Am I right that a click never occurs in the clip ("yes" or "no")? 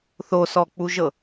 yes